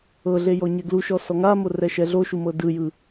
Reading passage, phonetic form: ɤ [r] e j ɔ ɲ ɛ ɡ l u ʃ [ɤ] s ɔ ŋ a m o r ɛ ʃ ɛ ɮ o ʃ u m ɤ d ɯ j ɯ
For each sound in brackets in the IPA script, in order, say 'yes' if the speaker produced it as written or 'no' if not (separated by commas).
no, no